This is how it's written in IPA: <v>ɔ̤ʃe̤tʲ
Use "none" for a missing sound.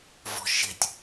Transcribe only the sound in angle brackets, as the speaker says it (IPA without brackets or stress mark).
v